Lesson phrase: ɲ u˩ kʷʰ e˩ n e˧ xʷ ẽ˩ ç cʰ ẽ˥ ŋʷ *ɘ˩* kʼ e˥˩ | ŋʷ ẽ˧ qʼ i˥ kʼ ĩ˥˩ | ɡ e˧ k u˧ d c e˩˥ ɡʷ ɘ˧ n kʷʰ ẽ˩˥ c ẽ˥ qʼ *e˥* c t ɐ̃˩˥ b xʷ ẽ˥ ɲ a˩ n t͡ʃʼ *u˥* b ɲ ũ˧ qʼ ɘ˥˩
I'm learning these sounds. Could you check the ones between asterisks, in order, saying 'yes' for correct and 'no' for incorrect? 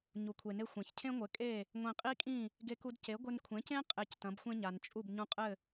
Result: no, no, no

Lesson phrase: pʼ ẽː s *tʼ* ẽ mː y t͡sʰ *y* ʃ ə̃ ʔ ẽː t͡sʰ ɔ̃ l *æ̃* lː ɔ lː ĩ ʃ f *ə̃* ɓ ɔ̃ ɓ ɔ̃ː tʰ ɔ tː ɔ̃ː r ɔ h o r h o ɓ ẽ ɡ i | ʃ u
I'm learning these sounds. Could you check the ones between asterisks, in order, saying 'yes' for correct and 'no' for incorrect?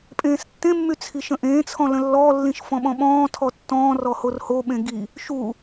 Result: no, no, no, no

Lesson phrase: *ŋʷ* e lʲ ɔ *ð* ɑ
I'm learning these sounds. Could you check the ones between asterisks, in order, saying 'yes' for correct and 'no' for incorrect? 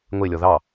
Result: yes, yes

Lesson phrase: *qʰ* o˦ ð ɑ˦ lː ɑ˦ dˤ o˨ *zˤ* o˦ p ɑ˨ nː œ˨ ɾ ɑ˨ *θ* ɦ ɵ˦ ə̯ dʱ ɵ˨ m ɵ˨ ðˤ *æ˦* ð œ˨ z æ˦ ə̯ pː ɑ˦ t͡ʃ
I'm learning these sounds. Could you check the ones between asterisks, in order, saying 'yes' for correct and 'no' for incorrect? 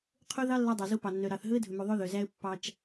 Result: yes, no, yes, no

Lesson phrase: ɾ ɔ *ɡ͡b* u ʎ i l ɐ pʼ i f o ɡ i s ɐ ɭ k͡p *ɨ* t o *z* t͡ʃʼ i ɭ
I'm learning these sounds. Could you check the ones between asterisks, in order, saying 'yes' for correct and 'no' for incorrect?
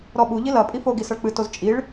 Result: no, yes, yes

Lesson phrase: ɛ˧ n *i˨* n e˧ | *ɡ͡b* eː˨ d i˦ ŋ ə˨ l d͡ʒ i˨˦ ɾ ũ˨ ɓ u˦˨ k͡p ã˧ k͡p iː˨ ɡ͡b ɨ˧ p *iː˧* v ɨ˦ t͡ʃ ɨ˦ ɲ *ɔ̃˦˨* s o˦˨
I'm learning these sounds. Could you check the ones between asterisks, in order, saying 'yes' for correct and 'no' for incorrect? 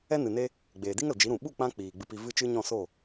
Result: no, yes, no, yes

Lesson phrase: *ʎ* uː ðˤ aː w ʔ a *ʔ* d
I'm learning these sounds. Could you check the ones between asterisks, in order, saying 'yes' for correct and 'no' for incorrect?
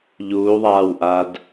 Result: yes, no

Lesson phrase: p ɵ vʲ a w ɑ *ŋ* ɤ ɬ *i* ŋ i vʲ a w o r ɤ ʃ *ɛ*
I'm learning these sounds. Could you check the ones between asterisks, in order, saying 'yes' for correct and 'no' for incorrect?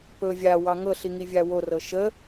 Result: yes, yes, no

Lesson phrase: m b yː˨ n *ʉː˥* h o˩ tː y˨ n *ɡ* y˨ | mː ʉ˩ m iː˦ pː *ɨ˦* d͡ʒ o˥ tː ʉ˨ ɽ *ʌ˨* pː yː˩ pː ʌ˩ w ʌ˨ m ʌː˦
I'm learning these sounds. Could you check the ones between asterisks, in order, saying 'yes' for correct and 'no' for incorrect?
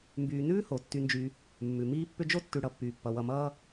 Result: yes, no, no, yes

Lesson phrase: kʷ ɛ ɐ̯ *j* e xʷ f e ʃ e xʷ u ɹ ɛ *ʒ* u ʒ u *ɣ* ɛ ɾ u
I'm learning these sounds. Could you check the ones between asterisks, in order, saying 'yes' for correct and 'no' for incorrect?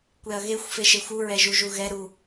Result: no, yes, yes

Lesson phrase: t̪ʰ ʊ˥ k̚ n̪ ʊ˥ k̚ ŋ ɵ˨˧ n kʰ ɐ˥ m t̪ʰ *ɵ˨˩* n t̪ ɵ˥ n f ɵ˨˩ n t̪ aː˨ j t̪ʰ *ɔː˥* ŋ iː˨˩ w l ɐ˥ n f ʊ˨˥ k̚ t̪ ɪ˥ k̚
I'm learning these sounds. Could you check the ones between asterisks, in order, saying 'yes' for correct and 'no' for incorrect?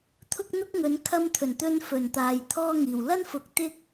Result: yes, yes

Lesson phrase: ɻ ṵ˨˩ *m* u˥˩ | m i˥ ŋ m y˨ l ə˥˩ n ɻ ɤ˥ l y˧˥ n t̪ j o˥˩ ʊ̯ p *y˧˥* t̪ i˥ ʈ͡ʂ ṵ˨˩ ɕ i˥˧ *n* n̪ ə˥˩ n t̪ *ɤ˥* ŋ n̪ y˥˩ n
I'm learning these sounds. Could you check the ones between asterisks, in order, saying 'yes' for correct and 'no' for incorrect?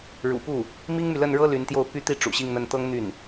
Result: no, no, no, yes

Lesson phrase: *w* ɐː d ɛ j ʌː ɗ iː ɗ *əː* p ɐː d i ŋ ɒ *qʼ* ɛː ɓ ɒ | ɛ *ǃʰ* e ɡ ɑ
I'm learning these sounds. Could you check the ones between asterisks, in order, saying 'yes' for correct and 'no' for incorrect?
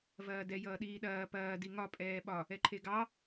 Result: no, no, no, yes

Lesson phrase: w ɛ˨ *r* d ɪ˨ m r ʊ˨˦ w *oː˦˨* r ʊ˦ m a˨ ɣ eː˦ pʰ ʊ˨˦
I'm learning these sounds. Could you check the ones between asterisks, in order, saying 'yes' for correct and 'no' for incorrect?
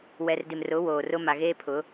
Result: yes, no

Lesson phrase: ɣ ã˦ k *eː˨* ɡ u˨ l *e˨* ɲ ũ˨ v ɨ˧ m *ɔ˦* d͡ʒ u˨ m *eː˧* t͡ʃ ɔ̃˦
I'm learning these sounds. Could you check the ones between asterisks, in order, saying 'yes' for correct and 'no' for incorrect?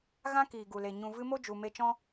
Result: no, yes, no, no

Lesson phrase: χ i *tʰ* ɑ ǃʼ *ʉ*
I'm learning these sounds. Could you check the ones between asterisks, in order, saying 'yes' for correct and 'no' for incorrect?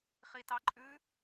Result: no, yes

